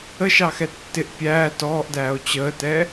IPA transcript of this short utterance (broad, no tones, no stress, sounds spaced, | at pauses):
ə ʃ ɑ x ɛ tː ɪ ʔ pʲ æː t ɔː ʔ d æː o̯ t͡ɕ əː t ɛ